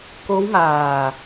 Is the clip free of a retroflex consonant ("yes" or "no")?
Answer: yes